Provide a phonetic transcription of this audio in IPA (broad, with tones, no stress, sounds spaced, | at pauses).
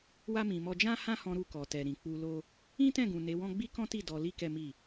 w a˦ m ĩ˧ m ɔ˦ d͡ʒ ã˦ h ã˦ h ɔ̃˧ ɾ u˧ k ɔ˨ t ɛ˨ ɾ ĩ˨ k͡p u˧ l o˦ | ĩ˦ t ɛ̃˦˨ ɡ ũ˨ n e˨˦ w ɔ̃˦ ɡ͡b i˦ k ɔ̃˦ t i˦˨ d ɔ˧ l i˦ k ɛ˦ m i˦˨